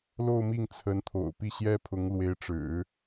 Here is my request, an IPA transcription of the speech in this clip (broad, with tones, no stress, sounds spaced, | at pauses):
l o˥˧ ʊ̯ m i˥˩ ŋ t͡sʰ ə˧˥ n t̪ʰ o̰˨˩ ʊ̯ p i˥˩ ɕ j ɛ˥ pʰ ʊ˧˥ ŋ l w e˧˥ ɪ̯ ʈ͡ʂ ɻ̩˨˩˦